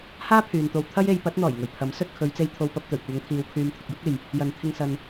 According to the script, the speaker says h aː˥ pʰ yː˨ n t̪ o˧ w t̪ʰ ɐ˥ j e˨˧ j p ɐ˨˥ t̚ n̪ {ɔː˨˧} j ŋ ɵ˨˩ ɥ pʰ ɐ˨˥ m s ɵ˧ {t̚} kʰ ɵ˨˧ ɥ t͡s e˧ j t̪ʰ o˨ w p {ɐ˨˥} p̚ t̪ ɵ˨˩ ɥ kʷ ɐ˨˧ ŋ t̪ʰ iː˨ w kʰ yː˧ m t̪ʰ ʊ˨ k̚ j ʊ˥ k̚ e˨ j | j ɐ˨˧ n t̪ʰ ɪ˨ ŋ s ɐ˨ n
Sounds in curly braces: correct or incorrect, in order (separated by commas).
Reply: incorrect, correct, incorrect